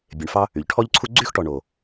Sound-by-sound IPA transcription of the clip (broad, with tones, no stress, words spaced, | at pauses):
bʲe˨ɳfɑ˦ | y˩ʎʈʰɔ˦ʎǀʰu˦ ɡ͡ǀy˥xʈɔ˨ɳo˩